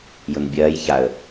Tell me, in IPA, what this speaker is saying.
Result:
j ʊ n bʲ ɐː j ç a ə̯

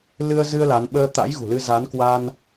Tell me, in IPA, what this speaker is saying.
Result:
l ɨ˧ ə̯ z ɨ˧ ə̯ l a˨˦ n ɓ əː˧ t̪ a̰˧˥ j ɣ ṳ˨˩ l ɨ˧ z a˨˦ n k w a˧ n

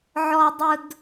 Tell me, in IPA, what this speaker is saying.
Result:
ʕ ɔ˧ dˤ ʊ˧ d

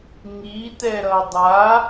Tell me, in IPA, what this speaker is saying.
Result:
ŋ i t ɛ ɾ ʌ dˤ a

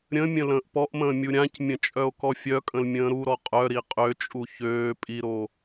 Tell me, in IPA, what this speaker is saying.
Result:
ɾʲ ə̃ mʲ ə̃ l ə̃ː ʔ p ɔ ʔ m ə̃ː mʲ u ɾʲ ã c mʲ ə̃ t͡ʃʼ œ o̯ k ɔ fʲ œ kʼ ə̃ l mʲ ə̃ː ɾ u ɾ ɔ qʼ œ ɾ i qʼ ø t͡ʃʼ u ç øː pʼ i ɾ o

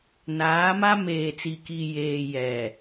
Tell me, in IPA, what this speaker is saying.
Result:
n aː˨˦ m a˦ m eː˨ t͡s i˨ k i˨ j eː˨ j ɛ˨

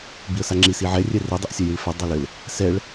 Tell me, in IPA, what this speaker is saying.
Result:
b i ə̯ s a ŋ͡ǁ i s i ʕ ɛ rʲ ɛ r e dˤ e ʔ sʲ ɛ j i ɭ f ɛ dˤ ɛ l ɘ l | s ɛ ɭ

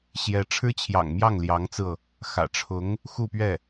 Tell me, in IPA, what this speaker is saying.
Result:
ɕ j ɛ˧˥ ʈ͡ʂʰ ɻ̩˥ t͡ɕʰ j ɑ̰˨˩ ŋ m j ɑ˥˩ ŋ l j ɑ˧˥ ŋ t͡s ɹ̩˧ ɤ˩ | x ä̰˨˩ ʈ͡ʂʰ ʊ˧˥ ŋ | x u˥˧ p ɥ ɛ˥˩

